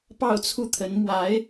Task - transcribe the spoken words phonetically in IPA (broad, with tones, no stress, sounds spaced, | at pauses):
p ɑ˥˧ ʊ̯ t͡sʰ u˥˩ t̪ʰ ə˧˥ n m w a˧˥ ɪ̯